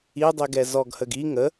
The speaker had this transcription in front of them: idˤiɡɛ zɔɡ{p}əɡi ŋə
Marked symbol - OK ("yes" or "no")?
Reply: no